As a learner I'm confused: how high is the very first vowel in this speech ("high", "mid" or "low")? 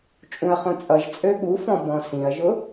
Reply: high